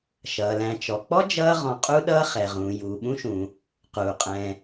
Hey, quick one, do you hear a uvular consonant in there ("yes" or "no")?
yes